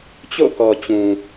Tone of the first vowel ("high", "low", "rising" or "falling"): falling